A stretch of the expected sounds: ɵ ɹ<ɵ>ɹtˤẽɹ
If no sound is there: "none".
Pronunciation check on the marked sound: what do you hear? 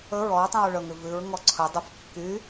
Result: ɔ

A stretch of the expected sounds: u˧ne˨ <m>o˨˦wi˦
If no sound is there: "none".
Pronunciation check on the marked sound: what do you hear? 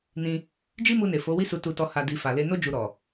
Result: f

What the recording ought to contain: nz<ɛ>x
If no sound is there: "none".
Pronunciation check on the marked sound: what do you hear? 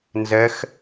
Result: ɛ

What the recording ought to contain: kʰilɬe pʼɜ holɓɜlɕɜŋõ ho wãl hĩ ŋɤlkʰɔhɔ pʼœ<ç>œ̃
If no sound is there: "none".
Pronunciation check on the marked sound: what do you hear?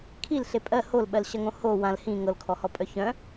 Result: ç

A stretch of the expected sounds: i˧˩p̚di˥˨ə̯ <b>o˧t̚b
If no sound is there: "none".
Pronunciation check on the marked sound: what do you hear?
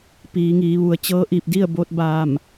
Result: b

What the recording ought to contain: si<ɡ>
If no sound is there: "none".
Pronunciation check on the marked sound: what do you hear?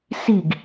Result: ɡ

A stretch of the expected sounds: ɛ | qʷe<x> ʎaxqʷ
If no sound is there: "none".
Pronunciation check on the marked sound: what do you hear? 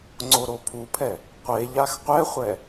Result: none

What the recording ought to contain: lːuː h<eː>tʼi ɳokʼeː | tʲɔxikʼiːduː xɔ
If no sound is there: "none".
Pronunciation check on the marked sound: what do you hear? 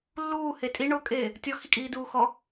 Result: e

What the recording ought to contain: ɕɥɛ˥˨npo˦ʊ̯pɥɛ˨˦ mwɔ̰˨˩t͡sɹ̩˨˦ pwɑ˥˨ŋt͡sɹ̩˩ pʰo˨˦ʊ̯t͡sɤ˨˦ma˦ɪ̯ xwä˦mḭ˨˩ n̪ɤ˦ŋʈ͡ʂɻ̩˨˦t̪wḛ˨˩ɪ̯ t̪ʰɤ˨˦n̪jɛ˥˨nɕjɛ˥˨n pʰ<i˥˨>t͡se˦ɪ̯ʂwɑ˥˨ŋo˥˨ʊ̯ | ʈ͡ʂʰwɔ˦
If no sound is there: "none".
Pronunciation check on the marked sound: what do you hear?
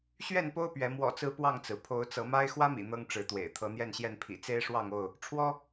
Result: ḭ˨˩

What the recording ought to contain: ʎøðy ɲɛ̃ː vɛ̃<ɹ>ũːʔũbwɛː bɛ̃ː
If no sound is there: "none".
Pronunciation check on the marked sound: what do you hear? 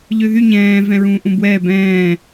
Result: ɹ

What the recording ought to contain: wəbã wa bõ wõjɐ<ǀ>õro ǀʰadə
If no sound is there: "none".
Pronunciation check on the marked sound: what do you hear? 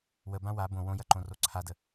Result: ǃ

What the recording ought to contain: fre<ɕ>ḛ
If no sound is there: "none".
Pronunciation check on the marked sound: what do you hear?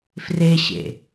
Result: ɕ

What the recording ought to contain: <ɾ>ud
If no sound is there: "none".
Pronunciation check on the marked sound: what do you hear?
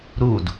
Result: ɾ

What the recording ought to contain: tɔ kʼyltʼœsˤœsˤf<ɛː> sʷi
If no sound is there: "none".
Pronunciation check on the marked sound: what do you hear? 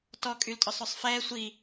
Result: ɛː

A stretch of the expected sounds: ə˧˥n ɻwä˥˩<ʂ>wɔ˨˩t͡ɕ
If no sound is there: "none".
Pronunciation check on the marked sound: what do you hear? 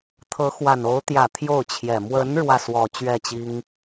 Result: s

